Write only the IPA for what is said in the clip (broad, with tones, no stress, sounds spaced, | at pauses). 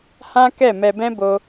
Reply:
h ã˦ k ɛ˦˨ m ɛ˧ b ɛ̃˦ b o˦